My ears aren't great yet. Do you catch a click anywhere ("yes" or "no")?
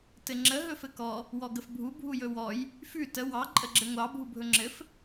yes